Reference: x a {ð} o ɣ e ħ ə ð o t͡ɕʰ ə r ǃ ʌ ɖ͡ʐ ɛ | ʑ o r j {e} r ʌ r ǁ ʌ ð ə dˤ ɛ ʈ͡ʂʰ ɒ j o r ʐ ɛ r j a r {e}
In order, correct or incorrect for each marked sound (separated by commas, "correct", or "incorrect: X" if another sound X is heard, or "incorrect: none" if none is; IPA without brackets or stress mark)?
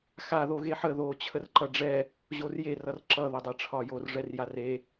correct, correct, correct